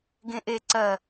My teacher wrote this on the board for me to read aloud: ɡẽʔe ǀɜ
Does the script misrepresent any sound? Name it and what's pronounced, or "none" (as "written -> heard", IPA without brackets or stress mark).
none